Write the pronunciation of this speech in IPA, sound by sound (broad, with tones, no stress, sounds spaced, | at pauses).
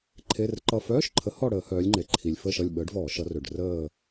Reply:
ǃʰ e˧˥˧ r ǃ ʌ˦˨ f œː˧˥˧ ʃ ǃʰ ə˨˥ h ɔ˦˨ ɽ əː˧˩˧ h œː˩˧ lʲ ŋ͡ǃ e˩ ǃʰ i˩ lʲ f əː˦˨ ʃ ʌ˦˨ lʲ ɓ əː˨˥ ɖ v ɔː˧˩˧ ʃ ʌ˩˧ r ø˩ ɖ r əː˦˨